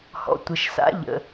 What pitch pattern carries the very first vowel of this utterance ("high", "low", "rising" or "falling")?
low